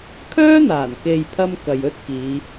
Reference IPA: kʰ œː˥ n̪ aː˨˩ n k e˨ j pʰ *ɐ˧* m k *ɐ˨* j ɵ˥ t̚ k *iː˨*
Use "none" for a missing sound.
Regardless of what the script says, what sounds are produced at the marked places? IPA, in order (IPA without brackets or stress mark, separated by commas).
ɐ˥, ɐ˨, iː˨˧